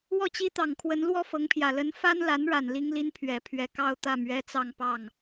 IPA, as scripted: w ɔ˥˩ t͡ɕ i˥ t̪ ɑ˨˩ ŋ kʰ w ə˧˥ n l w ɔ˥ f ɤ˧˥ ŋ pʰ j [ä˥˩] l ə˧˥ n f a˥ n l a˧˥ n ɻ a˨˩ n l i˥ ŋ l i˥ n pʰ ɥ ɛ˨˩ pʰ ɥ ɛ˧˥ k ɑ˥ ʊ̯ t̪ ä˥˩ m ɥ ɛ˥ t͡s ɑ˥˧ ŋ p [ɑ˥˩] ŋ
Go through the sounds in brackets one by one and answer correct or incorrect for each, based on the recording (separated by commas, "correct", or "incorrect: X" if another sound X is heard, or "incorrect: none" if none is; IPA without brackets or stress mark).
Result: incorrect: ä˨˩, correct